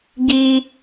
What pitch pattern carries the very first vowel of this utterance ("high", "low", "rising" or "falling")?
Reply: high